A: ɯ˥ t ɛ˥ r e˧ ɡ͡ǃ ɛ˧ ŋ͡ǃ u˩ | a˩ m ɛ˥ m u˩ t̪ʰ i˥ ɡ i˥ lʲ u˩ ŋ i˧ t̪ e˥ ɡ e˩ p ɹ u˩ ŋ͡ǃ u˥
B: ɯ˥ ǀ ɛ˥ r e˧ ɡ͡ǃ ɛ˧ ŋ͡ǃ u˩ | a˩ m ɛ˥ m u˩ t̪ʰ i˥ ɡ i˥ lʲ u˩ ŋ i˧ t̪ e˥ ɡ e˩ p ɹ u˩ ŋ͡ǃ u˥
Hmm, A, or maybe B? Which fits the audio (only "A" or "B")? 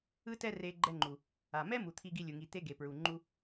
A